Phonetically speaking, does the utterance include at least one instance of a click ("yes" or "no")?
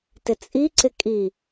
yes